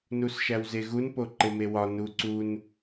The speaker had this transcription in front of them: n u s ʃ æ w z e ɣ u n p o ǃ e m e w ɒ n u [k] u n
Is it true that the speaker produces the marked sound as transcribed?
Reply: no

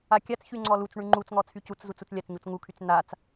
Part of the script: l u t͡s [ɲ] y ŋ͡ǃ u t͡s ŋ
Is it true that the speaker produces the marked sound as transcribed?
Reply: no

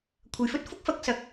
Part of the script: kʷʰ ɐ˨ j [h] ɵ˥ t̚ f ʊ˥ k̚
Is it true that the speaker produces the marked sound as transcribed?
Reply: no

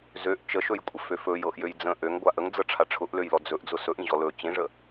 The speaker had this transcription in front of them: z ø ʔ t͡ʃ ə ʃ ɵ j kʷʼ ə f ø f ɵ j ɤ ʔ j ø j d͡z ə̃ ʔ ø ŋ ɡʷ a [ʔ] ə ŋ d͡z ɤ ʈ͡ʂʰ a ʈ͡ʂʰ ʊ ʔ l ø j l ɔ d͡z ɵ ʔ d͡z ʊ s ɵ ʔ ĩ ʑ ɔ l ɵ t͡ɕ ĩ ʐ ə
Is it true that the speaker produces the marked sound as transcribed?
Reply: yes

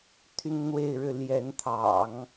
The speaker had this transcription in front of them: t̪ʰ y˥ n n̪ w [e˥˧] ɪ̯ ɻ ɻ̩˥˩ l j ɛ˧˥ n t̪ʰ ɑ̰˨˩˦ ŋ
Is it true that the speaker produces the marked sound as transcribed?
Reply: yes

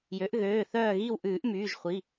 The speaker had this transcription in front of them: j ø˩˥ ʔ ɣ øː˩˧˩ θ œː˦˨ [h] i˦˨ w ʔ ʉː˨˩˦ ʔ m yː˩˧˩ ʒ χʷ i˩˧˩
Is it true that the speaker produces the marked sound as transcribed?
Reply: no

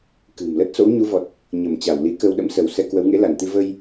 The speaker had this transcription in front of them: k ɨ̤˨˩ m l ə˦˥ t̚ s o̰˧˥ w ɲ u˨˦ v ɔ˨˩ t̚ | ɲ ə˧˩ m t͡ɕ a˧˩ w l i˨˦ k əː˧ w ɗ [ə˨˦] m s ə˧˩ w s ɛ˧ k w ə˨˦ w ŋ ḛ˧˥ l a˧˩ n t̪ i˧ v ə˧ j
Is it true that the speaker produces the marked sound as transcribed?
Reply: no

